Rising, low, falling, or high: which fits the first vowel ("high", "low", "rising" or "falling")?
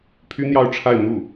high